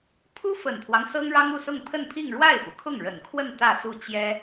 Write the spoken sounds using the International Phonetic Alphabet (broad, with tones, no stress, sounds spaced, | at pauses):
pʰ u˥ f ə˨˩ n t̪ʰ w ɑ˦ ŋ s ɤ˥ ŋ ɻ ɑ˥ ŋ u˥˧ s ʊ˥˧ ŋ pʰ ə˥˧ n pʰ i˥˧ ŋ ɻ w a˥˩ ɪ̯ f u˩ kʰ ʊ˥˩ ŋ ɻ ə˨˩ n kʰ w ə˥˧ n t̪ ä˥˧ s u˥˩ t͡ɕ j ɛ˥